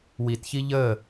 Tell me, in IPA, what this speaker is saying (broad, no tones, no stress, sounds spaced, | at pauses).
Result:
w i t ç i ʎ ə